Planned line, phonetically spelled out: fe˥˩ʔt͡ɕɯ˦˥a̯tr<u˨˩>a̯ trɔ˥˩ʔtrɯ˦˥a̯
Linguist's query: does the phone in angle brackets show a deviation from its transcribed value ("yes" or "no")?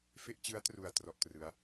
no